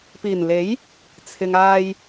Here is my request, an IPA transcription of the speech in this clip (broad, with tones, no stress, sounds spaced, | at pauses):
p iː˨˩ n l e˨˥ j | t͡sʰ ɪ˨ ŋ aː˧ j